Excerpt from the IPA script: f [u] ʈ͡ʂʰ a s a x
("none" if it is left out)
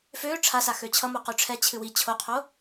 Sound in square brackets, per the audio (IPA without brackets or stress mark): ø